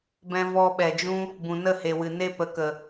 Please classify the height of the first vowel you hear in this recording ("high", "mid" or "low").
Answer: mid